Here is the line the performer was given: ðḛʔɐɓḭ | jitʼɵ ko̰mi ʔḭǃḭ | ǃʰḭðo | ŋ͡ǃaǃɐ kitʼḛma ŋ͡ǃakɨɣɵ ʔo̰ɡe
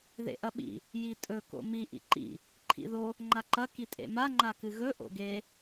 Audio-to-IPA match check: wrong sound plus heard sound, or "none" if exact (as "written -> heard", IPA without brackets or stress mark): none